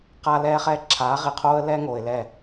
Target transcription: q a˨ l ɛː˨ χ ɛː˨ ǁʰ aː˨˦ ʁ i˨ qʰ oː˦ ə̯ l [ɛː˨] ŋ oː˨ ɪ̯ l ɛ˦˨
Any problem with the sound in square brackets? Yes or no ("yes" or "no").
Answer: yes